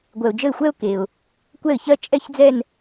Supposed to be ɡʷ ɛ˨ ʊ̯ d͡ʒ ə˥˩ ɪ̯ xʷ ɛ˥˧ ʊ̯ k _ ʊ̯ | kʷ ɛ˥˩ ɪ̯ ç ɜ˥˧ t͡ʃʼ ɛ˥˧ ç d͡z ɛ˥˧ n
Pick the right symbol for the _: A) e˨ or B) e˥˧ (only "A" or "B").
A